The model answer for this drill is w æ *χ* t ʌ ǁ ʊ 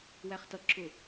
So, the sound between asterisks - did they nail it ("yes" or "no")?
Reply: yes